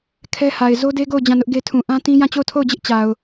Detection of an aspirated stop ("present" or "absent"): present